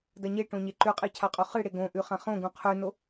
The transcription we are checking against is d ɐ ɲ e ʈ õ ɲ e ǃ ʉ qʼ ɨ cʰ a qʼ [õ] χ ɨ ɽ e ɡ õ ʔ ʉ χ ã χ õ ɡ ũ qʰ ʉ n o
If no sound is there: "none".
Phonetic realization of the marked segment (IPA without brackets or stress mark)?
o